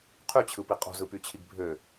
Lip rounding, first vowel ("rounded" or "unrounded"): rounded